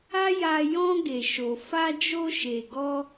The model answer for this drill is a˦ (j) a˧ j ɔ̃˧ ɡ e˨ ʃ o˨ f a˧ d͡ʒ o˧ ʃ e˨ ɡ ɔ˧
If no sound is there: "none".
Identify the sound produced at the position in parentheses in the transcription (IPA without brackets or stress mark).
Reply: j